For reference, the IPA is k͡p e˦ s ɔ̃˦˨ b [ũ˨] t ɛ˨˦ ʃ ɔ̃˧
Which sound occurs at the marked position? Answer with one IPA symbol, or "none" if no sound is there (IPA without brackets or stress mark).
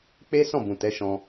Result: ũ˨